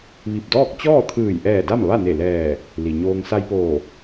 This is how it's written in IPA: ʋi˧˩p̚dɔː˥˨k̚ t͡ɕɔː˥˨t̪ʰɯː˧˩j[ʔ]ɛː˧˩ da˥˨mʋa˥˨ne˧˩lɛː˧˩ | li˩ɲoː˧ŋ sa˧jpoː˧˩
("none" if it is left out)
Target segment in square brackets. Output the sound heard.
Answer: ʔ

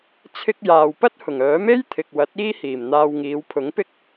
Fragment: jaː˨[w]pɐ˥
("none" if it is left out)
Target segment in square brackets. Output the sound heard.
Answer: w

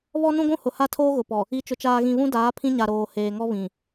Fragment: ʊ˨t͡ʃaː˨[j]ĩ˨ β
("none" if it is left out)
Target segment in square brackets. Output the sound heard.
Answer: ɣ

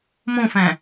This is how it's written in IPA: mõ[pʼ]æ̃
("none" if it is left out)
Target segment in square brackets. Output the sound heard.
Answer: f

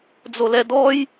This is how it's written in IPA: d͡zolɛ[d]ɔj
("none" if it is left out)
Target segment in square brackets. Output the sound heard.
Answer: d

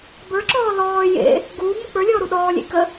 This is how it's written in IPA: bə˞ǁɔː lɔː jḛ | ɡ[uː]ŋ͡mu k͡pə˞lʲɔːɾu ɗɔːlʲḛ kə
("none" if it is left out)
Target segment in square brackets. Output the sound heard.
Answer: uː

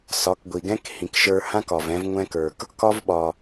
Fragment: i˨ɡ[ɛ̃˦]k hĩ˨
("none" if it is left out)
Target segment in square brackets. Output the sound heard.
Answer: ɛ̃˦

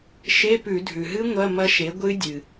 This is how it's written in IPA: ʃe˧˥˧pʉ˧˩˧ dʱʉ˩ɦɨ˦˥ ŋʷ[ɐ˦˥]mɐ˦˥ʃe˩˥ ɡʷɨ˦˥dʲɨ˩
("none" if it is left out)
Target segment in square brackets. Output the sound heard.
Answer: ɐ˧˥˧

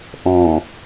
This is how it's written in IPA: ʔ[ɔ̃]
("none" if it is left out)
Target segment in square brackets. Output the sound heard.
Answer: ɔ̃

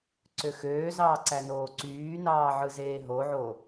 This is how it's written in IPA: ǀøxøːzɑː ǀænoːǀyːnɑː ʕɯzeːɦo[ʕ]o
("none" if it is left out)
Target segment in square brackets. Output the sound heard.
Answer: ʕ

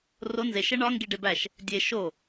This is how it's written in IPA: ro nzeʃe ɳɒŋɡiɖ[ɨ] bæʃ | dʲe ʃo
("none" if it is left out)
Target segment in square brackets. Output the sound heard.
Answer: e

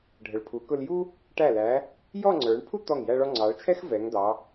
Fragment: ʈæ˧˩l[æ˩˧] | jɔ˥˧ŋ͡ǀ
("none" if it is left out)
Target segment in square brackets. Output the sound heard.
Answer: æ˩˧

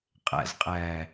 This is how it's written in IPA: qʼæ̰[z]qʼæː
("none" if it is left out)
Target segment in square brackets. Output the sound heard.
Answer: z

